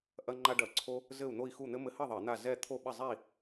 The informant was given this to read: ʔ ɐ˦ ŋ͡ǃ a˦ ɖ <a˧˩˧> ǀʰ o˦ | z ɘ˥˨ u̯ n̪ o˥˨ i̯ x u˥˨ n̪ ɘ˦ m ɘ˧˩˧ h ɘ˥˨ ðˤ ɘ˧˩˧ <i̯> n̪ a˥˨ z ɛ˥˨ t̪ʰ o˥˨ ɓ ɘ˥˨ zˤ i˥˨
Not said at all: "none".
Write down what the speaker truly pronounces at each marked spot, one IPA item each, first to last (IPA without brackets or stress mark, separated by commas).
ɐ˧˩˧, i̯